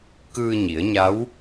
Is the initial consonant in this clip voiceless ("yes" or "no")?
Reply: yes